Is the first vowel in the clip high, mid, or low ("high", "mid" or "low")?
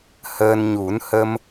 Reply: mid